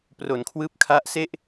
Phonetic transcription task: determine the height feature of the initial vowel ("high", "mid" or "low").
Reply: mid